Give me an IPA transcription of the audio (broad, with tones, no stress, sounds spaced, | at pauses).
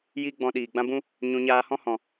j i˦ ɡ͡b ɔ̃˧ ɗ iː˨ ɡ͡b ã˦ b ũ˦ | ɲ ũ˧ ɲ aː˧ h ɔ̃˦ h ɔ̃˨